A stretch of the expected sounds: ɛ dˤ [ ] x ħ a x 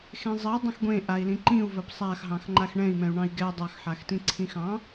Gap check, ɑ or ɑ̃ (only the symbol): ɑ